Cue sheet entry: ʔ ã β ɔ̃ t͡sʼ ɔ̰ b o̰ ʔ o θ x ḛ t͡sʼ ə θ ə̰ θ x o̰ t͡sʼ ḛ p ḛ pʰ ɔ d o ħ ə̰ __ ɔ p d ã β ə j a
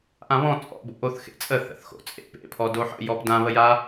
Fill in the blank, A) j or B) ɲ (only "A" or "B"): A